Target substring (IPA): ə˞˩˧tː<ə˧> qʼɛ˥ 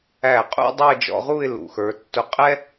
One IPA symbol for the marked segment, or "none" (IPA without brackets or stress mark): ʊ˧